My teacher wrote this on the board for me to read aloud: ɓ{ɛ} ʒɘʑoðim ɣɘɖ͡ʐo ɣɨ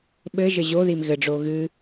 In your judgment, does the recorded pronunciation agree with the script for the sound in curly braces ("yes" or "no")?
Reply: no